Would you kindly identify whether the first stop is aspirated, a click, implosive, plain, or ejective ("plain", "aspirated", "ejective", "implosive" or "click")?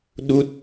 implosive